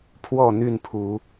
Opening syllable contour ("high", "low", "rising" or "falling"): falling